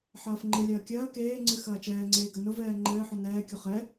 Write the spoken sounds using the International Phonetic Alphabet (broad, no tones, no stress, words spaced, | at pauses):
ħɐːfŋ͡ǃɨlʲɐː kʲɐː keːŋ͡ǀɨ xɐːt͡ʃɛːŋ͡ǀeː ɡɐnʊvɛː ŋ͡ǃɘːħʊ nɛːkʲo χɛ